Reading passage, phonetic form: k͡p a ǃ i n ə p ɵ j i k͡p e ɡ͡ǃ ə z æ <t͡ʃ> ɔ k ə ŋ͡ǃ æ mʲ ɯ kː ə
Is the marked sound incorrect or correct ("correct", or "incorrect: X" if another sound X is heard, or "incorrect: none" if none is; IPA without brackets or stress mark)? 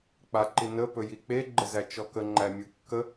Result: correct